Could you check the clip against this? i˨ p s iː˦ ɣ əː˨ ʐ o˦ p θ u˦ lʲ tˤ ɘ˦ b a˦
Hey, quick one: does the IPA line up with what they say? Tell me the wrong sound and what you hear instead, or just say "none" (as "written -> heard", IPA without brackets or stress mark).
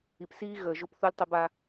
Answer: ʐ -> ʒ